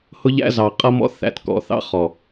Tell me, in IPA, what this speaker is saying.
h ʊ˦ ʎ æ̰˦ z ɑ˨ qʼ ʌ˦ m ɔ̰˦ θ æ̰˨ t k ɔ̰˨ θ ɑ̰˦ χ ɔ˨

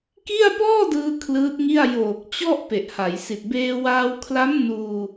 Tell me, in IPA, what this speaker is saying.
k i˥˩ a̯ p ɔː˥˩ d ɯː˧ kʰ l ɯː˦˥ t̚ ŋ i˥˩ a̯ j oː˨˩ k̚ t͡ɕ ɔ˥˩ ʔ p e˨˩ ʔ h a˩˦ j s i˨˩ t̚ b eː˧ w aː˧ w kʰ l a˦˥ m n uː˧

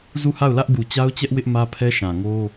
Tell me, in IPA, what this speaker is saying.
z u˦˨ h a˦˨ ʊ̯ l ä˦ ʔ ɡ u˨ t͡ɕ a˦ ʊ̯ t͡ɕ ɛ˦ ʔ w ɪ˦ ʔ m ä˦ pʰ ɛ˦ ʃ ã˨ ŋ o˦

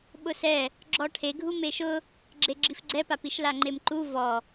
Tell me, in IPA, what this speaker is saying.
ɓ ʊ s ɛ | ɡ͡ǁ ɔ ʈʰ e ɡʱ u m e ʃ ʊ | ɡ͡ǁ e ɡ͡ǁ i f ɡ͡ǀ ɛ p a p i ʃ l a ŋ͡ǃ e m ǃ u v ɔ

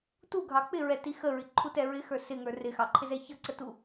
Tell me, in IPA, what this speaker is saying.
t u ɡʱ ɑ k͡p ɪ ɹ ɛ t i x ə ɹ ɪ ǃʰ u t ɛ ɹ ɪ x ə˞ s ɪ ŋ ə˞ r ɪ x ɑ ǃʰ ɪ z ɛ ç ʌ ǀ ə t u

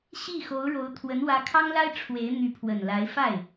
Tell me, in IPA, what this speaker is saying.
ɕ i˥˩ x o˧˥ ʊ̯ ɻ o˧˥ ʊ̯ t̪ʰ w ə˧˥ n w ä˧˥ kʰ ɑ˥ ŋ l a˥ ɪ̯ ʈ͡ʂʰ w e˧˥ ɪ̯ n̪ y˧˥ pʰ w ə˨˩ n l a˧˥ ɪ̯ f a˥˩ ɪ̯

